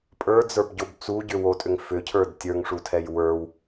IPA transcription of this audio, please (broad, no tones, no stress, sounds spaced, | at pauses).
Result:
pʼ ə˞ d͡z ə˞ b ɟ o b t͡s u ɟ ʏ w o tʼ ʏ ŋ f ʏ cʰ ə˞ d tʲ ə˞ ŋ ʂ u tʰ ɛ j w ə˞ w